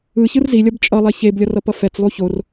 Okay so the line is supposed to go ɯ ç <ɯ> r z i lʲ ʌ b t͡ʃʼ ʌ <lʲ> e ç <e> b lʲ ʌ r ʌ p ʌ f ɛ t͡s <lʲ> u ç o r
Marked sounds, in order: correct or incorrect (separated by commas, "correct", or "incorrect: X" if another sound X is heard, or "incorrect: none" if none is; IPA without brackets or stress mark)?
correct, incorrect: lˠ, correct, incorrect: lˠ